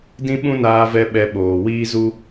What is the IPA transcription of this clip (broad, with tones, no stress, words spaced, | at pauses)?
dĩ˦ɓũ˦naː˧vɛ˧ ɓɛ˧ɓoː˨wiː˦zu˦